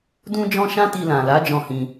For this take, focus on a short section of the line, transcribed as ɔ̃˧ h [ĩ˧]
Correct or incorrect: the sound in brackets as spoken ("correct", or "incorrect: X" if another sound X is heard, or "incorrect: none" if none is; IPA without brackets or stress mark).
correct